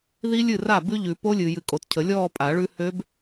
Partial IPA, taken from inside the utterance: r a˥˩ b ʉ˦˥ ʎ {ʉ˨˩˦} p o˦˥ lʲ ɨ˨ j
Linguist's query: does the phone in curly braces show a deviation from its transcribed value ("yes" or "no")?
no